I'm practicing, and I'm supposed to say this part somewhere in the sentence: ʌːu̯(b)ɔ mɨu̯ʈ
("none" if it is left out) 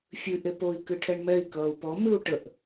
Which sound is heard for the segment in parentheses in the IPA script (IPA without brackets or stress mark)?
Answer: p